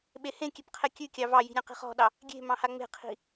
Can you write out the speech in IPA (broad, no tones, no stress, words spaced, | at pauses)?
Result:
ɓehẽkʲep qʰɛkʲʉkʲɑ vɑji̤ ɾʲɑ̃qi̤χɔ̤ɗɑ | ɡʲe̤ mɑ̃haŋ͡me̤qʰi̤